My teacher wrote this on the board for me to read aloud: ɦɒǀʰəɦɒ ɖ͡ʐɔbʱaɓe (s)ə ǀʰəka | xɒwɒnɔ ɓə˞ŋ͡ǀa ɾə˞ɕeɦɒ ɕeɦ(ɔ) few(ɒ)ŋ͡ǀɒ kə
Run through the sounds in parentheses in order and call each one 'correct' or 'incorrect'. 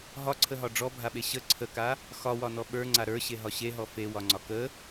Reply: incorrect: ɕ, correct, correct

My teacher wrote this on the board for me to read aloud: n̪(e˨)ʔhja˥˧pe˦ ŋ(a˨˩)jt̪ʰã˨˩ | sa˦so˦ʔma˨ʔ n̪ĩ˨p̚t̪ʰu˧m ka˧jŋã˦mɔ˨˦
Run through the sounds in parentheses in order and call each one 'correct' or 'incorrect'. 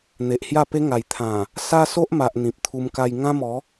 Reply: correct, correct

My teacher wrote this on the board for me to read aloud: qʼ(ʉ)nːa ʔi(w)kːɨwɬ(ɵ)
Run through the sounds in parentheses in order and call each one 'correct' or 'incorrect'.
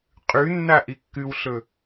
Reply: correct, incorrect: none, correct

